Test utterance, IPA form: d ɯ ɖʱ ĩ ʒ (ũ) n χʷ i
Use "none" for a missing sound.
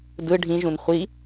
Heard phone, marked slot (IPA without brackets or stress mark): ũ